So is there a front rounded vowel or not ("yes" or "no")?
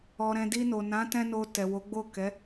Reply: no